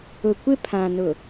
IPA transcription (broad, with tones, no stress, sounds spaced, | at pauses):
ʊ˨ kʷ ɪ˦ pʰ ã˨ n ʊ˨